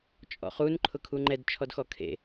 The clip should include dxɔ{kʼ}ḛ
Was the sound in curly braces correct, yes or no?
no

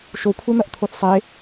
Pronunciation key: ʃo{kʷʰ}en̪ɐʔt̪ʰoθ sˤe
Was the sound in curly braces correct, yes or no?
yes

